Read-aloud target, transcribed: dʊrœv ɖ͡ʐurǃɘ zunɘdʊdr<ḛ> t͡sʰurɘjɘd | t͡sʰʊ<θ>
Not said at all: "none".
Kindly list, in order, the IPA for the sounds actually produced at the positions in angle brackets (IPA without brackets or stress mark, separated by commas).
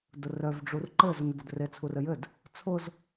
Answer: e, z